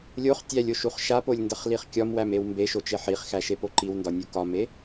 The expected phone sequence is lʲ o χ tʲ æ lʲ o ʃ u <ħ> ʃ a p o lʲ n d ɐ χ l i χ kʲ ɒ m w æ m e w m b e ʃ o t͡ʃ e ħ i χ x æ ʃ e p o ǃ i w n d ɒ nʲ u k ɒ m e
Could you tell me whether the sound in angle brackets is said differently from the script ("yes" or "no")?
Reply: yes